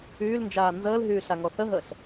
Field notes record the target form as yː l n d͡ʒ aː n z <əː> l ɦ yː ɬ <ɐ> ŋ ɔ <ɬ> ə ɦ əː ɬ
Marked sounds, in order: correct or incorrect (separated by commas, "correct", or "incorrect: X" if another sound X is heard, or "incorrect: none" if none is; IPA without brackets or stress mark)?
correct, incorrect: a, incorrect: θ